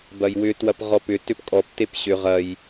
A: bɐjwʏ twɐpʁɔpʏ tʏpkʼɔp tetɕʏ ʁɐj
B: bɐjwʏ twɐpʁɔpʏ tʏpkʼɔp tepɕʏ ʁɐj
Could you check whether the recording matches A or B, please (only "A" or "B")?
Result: B